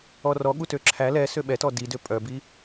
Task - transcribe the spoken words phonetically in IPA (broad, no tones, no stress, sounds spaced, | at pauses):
ɔ r ɔ ɠ u t ø ǁʰ æ l ɛ s ø ɓ ɛ t ɔ d i d ø pʼ œ b i